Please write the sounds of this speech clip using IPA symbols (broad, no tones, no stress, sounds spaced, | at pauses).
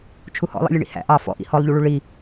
t͡ʃʰ u h ɔ̰ lˠ ḭ lʲ ə ɳ ḭ h æ̰ ʔ ɑ f ɔ̰ ʔ ḭ h ɔ lˠ ʎ u ɭ u ɭ i